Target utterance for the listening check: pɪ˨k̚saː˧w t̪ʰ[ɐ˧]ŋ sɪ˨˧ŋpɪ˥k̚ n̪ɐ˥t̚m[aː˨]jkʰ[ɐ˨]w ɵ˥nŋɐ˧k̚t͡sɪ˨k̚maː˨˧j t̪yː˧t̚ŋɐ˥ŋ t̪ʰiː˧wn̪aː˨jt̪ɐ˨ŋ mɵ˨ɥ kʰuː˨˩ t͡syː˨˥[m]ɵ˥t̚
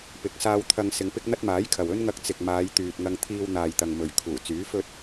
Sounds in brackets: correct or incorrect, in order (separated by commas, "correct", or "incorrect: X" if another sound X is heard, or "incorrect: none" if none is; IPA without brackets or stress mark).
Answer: correct, incorrect: aː˨˥, correct, incorrect: f